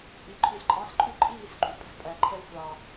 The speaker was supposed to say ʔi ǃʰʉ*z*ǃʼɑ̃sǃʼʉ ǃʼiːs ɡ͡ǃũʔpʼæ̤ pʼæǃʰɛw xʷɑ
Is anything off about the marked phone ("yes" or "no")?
no